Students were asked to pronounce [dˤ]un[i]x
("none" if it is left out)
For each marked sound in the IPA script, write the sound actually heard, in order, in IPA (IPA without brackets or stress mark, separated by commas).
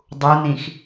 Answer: dˤ, ĩ